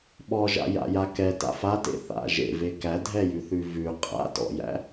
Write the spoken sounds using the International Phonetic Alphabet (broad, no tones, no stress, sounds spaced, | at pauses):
ɓ ɔ ʒ a̰ j a̰ j a k ɛ t a̰ f a t ḛ θ a̰ ʒ ḛ v e k æ dʱ ɛ j ʉ θ ʉ v ʉ qʼ a̰ t ɔ̰ j æ̰